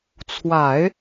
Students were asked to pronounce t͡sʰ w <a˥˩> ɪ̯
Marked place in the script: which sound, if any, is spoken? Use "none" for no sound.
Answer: a˨˩˦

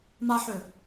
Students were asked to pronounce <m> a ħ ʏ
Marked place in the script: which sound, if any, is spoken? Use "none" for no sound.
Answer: m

